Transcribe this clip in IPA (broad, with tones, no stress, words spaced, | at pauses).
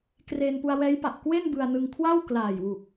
kre˧n pu˧a̯wɛː˦˥jpa˨˩ʔ kwe˥˩n bɯ˧a̯nɯ˧ŋ kʰwa˥˩wklaː˨˩jwu˨˩k̚